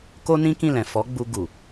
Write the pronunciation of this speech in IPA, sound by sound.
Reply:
k o˦ n ĩ˦ k ĩ˦˨ l ɛ̃˨ f ɔ˨˦ ɡ͡b u˧ ɡ u˨

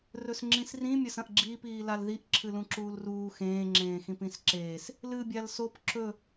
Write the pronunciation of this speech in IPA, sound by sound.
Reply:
r ɵ s ŋ͡ǁ ĩ s r ĩ mʲ ɐ s ɐ̃ ʔ ɡ͡ǁ iː p iː l a l ð i ʔ ǁʰ ɨ l ũ ǁ uː l r uː x ẽː ŋ͡ǁ ẽː x ĩ p ĩ s ǁ eː s | l ɨ bʲ a l s o p ǁ ɵ

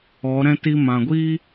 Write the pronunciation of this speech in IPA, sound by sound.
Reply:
ɔ˨˦ ɾ ɛ̃˦ t i˧ m ã˨ ɡʷ iː˦

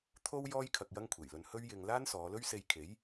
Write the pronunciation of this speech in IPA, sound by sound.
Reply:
t̪ʰ o˥ w j ɔː˥ j kʰ ɐ˧ k̚ j ɐ˥ ŋ kʷʰ e˨˩ j l ɵ˧ n h ɵ˥ ɥ j ɪ˧ ŋ l aː˥ n s ɔː˨˧ l ɵ˥ ɥ s e˧ j kʰ e˨˥ j

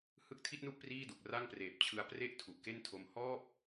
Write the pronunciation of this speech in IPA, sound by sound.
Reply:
h ɯ˦˥ k̚ tʰ i˥˩ t̚ n u˥˩ ʔ p r iː˥˩ d u˨˩ k̚ r a˥˩ ŋ p r eː˨˩ p̚ t͡ɕʰ ɯ˧ a̯ p r e˥˩ ʔ tʰ u˨˩ ʔ k e˥˩ n tʰ o˧ m h ɔː˥˩ p̚

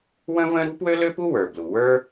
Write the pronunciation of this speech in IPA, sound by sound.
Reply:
w ə̃˥ v ə̃˥ ɾ ṳ˥ p w ø˥ l ø˥ p u˥ w ə˞˩ b l u˩ w ə˞˥

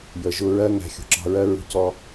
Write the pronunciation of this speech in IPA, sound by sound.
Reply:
j ə˨ ʒ ʊ˧ ɹ ɜ˦ ŋ æ̤˧ xʲ ṳ˨ ǁ ɑ̤˧ ɹ ɜ˦ ɹ ṳ˦ c ɔ˦

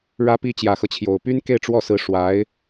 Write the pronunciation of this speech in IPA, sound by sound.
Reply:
ɻ ä˧˥ p i˧˥ t͡ɕ j ä˨˩ x ɤ˦ t͡ɕʰ j o˨˩ ʊ̯ p y˥ n k e˥˧ ɪ̯ ʈ͡ʂ w ɔ˥˩ s ɹ̩˧˥ ʂ w a˧˥ ɪ̯

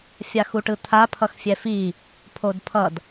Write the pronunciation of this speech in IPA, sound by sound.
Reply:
fʲ a x u ʈ ɯ t̪ʰ a pʰ ʌ x fʲ ɛ f i | pʰ o d pʰ ʌ d

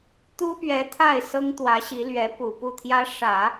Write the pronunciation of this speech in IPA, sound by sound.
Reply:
t̪ u˥ p ɥ ɛ˧˥ t̪ʰ a˥˩ ɪ̯ s ɤ˥ ŋ t̪ w ä˧˥ ɕ i˧˥ l ɥ ɛ˧˥ p u˨˩ p u˥˩ t̪ʰ j ä˥ ʂ ä˨˩˦

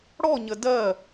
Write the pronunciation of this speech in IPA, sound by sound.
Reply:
ɽ ɔ ɲ ə d ɜ

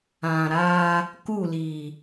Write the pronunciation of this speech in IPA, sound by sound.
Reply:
ã˨ ɾ aː˦ | k u˦˨ l iː˨

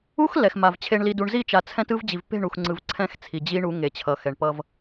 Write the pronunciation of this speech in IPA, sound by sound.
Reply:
u˦ x l ɛ˨ x m a˨ v t͡ɕʰ e˨ ɳ l i˨ d u˨ ɳ z i˦˨ t͡ʃ a˨ t͡sʰ ɛ̃˦ t ɯ˦ v d͡ʑ i˨ v p e̤˦˨ ɳ u˨ x ŋ͡ǀ ɯ˨ v ǀʰ ɛ̃˦ x t͡sʰ i˨ d͡ʑ i˦ ɳ u˨˦ ŋ e˨ t͡ɕʰ ʌ˨˦ x ɛ˨ ɳ p ʌ˦ v

